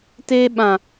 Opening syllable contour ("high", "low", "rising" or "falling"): high